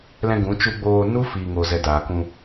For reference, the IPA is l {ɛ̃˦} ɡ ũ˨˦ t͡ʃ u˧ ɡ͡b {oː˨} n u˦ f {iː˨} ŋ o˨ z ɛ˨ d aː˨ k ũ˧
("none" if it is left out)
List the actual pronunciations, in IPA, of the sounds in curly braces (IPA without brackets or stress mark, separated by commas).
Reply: ɛ̃˧, oː˧, iː˨